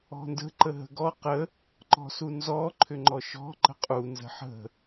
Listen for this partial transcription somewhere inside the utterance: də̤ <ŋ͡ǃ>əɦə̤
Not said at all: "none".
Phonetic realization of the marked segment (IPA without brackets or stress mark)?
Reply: ǃ